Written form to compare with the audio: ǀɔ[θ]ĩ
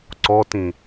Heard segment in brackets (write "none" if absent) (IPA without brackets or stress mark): t